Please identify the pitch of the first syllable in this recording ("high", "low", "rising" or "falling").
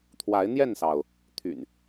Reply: rising